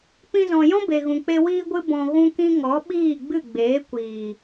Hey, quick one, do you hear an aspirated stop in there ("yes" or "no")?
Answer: no